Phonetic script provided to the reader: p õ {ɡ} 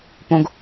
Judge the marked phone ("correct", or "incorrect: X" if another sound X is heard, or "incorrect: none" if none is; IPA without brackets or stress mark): correct